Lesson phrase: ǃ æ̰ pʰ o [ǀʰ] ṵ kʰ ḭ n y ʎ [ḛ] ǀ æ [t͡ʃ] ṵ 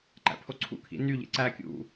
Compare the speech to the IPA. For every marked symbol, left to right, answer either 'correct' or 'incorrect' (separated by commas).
correct, correct, incorrect